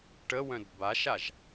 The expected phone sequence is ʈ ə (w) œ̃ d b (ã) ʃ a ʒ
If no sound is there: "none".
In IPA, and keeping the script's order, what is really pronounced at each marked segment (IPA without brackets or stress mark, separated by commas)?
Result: w, a